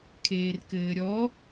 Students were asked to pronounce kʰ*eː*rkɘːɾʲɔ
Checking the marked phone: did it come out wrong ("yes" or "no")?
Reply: no